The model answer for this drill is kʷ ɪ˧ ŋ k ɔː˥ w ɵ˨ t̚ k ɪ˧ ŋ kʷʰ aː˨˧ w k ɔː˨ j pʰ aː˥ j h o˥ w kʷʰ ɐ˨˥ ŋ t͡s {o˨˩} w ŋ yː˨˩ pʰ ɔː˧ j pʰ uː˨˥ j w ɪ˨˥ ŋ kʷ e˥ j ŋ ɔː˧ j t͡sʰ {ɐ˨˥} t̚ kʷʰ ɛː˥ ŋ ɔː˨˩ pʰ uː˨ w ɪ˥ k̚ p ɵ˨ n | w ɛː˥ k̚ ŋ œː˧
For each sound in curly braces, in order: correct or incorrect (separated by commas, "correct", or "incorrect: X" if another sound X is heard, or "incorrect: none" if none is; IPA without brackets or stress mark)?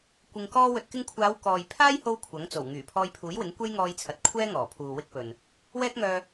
correct, incorrect: ɐ˨